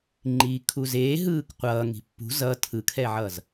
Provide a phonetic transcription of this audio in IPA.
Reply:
ŋ͡ǃiːkʰuzeː ɦɯːkqʷʌː ŋi̤pːṳ zʌ tʰɯkʰɛʕʌz

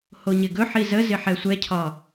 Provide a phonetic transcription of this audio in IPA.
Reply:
hoɲɪɡɵħi zəzɪ ħɛsʷɛcʰɒ

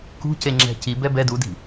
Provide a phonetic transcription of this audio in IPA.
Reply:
kṳce ŋ͡ǁɛ̤ci bɛbɛ dudi̤

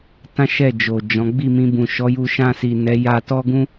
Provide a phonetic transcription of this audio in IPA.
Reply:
tã˦ ʃɛ˦˨d͡ʒo˨d͡ʒɔ̃˨˦ ɡ͡bi˦˨mĩ˧ bũ˨ʃɔ˨˦ju˧ ʃã˧si˨ nɛ˨˦ja˧tɔ˦ɡũ˦

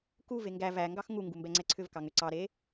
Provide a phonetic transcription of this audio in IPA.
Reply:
kuve ŋɡæ væŋɡɑx ŋuŋɡu mbɛŋ͡ǀɛǀʰʏvkɑ ŋʏǀɑɾe

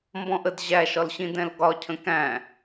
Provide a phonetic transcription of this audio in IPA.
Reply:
mbɔ̃ʔəd ʑæʃɒlɕĩ dɛ̃lɡɒcʰə̃ kæ̃

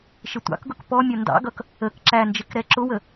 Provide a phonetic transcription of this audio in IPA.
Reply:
ʃɪtʷɑ̰kɡʊk pɔ mʲʌndɑ̰ɡʌk | ək ǁænd͡ʒɪk ɾɛǁʊwə

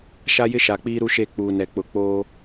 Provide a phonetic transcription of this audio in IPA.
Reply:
ʃa˦jɪ˦ʃa˨k͡piː˦ ɾu˦ʃe˦˨ k͡puː˨nɛ˨k͡pʊ˨˦ k͡poː˦

